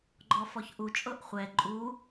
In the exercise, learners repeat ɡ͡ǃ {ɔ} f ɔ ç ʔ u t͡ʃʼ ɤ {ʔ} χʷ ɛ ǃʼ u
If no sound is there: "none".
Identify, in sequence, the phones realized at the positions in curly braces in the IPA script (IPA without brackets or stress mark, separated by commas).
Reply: ɔ, ʔ